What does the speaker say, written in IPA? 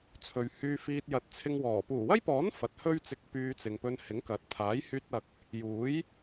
t͡sʰ ɵ˨ ɥ h yː˧ f iː˧ t̚ j ɐ˨˥ t̚ t͡sʰ ɪ˧ ŋ w ɔː˨˩ p uː˨˩ w ɐ˥ j p ɔː˨˥ n f ɐ˨ t̚ h ɵ˥ ɥ t͡s ɪ˧ k̚ p yː˧ t͡s ɪ˨ ŋ p ɵ˧ n h ɪ˨˥ ŋ k ɐ˨˥ t̚ t̪ʰ aː˨˥ j h yː˧ t̚ ɐ˨ k̚ | j uː˨˥ j

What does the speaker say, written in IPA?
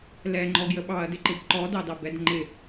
l ɛ ŋ͡ǃ ɔ ɡ j ə ɓ ɑ ɐ̯ d ɪ ǃ ɪ b ǃ ɔ d ɑ d ɑ b ɛ d ŋ͡ǃ ɪ

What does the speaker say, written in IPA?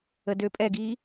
ə d ø pʼ ɛ ɡ iː

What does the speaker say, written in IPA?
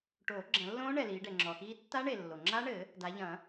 ʈ oː˨˩˦ ɡ͡ǁ ɐ̃˨˩˦ lː õː˦˥ ɳ ɛ˨ l iː˨˦ ɖ ɛ˨ ŋ͡ǁ ɔ˨ x iː˦˥ tː a˦˥ ɳ e˨ lː o˨ ŋ͡ǁ a˦˥ ɳ ɘ˨˩˦ | d a˨˦ ʎ ɐ̃˨˩˦

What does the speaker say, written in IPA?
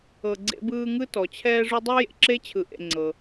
ɤ˨ ɡ͡ǀ ḛ˦ b ɯː˦ ŋ ɯ˥ t ɔ˩ t͡ɕʰ ɛː˦ ʐ u˦ dˤ e˥ j ḛ˨ ǁ e˥ t͡ɕʰ ɯ˩ ʔ ḛ˨ ŋ͡ǀ ɤ˩

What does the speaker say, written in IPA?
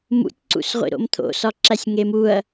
m ṵ tʲ ǀ ṵ s ʁʷ ḭ ɾ o̰ m t̪ʰ o̰ s ɒ ǁ æ sʲ ŋ e m u ɐ̯

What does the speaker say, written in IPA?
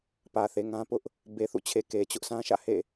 p ä˨ θ e˨ ŋ ã˦ p ʊ˦ ʔ | b e˨ θ ṵ˦˨ t͡ɕʰ e˨ k e˨ t͡ɕ ʊ˦ ʔ sʰ ã˦ ʃ ä̰˦˨ h ḛ˦˨

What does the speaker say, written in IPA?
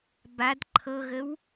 b a d ǃʰ ɤ ɣ ə w

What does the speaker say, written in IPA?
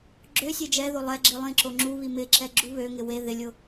ɡ͡ǁ ø sʲ e d͡ʒ ɛ ð o lˠ ɛ ɡ͡ǁ i lˠ ĩ ǁ o ŋ͡ǁ u β i m ɪ ǁ ɛ ɡ͡ǁ u β ø ŋ ɪ w e ð ɪ lʲ ʊ

